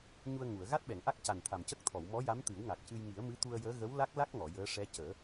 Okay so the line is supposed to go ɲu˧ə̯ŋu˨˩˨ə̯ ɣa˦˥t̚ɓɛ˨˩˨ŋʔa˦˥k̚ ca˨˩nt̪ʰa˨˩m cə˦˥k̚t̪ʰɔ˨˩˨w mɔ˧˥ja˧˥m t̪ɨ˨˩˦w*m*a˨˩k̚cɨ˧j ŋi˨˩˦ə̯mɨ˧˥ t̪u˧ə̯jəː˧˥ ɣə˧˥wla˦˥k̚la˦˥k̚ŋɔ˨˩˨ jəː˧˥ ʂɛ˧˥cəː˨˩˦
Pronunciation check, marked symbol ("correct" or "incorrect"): incorrect